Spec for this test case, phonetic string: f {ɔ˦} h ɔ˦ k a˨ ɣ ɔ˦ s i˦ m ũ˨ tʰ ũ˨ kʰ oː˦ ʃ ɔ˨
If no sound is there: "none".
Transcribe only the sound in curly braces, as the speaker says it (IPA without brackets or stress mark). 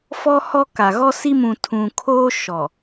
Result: ɔ˦